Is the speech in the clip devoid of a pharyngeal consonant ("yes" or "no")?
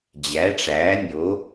yes